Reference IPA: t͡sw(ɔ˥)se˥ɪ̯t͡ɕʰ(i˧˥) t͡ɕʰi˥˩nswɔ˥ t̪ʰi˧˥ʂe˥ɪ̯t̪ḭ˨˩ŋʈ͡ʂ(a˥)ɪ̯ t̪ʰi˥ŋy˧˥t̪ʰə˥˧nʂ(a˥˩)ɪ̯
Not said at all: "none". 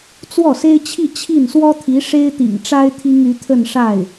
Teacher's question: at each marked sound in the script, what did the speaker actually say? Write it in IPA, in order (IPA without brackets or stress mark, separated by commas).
ɔ˥˩, i˥˧, a˥, a˥˩